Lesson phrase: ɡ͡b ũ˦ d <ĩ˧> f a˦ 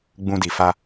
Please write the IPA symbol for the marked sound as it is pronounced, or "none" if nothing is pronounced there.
i˧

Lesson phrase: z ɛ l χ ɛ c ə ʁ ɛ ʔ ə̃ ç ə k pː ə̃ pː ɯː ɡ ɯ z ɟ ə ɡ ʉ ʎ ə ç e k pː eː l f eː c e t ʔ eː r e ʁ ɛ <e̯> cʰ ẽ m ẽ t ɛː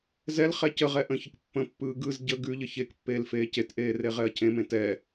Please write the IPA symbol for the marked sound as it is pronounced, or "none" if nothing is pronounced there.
ɐ̯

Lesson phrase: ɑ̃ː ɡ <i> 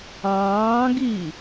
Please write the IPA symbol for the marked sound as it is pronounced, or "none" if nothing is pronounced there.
i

